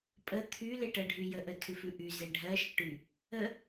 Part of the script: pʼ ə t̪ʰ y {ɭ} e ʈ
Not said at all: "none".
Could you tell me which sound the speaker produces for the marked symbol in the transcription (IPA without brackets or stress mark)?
l